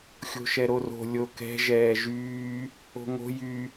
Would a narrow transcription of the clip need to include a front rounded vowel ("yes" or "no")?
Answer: yes